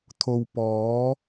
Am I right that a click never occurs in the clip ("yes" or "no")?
yes